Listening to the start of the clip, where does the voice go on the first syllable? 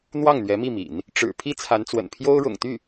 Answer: falling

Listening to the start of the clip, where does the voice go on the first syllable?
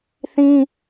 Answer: high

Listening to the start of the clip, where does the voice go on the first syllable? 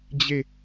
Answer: falling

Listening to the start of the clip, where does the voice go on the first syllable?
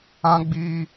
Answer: high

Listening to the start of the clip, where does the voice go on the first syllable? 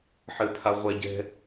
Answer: low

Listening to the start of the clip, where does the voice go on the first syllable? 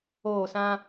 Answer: falling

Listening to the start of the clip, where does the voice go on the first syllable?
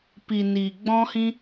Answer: low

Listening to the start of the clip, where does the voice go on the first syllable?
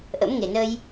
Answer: rising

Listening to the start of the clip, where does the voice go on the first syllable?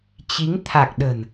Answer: rising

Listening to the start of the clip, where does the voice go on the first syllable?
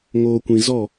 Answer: low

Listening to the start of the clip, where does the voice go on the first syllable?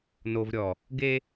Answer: low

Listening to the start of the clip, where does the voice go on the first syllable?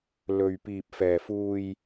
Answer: low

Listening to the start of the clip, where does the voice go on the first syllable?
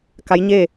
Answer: rising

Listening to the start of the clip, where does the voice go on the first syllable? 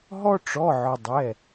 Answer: high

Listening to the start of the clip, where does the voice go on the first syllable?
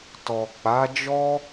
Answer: low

